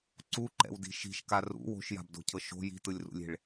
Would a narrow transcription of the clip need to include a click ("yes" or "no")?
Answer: yes